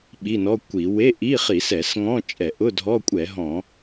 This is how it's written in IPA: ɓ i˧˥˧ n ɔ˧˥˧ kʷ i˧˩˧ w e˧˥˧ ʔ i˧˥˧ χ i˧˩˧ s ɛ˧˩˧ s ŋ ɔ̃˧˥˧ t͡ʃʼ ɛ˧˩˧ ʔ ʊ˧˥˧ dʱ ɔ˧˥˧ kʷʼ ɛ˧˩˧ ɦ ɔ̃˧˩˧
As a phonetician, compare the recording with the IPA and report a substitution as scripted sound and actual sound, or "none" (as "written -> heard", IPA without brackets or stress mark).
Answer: none